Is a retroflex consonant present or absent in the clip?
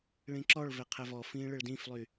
present